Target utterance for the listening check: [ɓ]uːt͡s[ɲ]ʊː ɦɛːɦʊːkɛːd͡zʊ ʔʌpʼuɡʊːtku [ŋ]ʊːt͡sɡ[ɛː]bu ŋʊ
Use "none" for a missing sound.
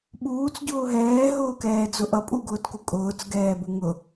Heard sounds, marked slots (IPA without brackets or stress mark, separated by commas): ɓ, ɟ, kʼ, ɛː